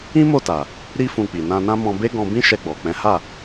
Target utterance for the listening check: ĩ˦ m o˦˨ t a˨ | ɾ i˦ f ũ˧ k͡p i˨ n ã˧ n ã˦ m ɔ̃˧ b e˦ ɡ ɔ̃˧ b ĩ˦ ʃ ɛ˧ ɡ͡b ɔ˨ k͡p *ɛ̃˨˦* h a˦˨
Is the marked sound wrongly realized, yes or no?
no